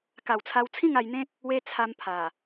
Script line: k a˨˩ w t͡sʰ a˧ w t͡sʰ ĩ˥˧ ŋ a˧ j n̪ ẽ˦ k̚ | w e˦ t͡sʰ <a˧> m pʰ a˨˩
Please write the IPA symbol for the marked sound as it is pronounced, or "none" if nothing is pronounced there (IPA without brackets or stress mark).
a˧